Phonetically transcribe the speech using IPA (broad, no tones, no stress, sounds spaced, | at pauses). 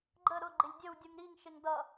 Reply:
ɡ͡ǃ ə ɾ ʊ ɡ͡ǃ ɪ lʲ dʲ ə w dʲ u ŋ ɾ i ŋ ʃ ɪ ŋ d ʌ